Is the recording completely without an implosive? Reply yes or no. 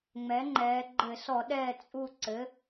no